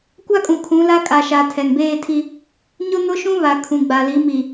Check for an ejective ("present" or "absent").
present